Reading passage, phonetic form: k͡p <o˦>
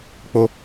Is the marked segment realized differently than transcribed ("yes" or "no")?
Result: no